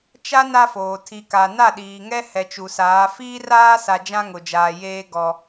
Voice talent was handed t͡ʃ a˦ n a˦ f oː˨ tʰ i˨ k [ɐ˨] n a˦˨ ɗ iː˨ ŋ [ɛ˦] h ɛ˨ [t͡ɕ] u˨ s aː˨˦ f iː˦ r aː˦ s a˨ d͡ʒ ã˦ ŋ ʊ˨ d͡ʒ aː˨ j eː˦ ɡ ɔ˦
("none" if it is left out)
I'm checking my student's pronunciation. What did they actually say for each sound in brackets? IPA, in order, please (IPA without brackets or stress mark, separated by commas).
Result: a˨, ɛ˦, t͡ʃ